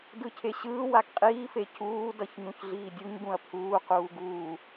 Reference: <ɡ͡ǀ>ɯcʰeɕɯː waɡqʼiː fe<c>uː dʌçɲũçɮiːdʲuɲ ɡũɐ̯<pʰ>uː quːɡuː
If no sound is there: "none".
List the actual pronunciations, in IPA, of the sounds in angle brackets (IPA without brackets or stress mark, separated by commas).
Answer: d, c, pʰ